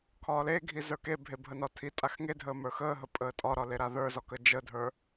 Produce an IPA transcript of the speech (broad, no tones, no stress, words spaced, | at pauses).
kʰɒːleɡʱi zə˞kebʱe bʱənɒtʰitʼax ŋedʱəː mə˞xəːɦə pʼəːtʼɒɾɒ leɾaðə˞zɒ kəd͡ʒədʱə˞